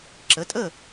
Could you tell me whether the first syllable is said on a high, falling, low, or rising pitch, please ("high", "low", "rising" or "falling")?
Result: rising